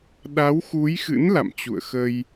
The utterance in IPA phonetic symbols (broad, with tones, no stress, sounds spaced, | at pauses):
ɗ a˨˦ w x u˨˦ j x ɨ̰˧˥ n l a̰˧˨ m t͡ɕ ṵ˧˨ ə̯ x ə˧ j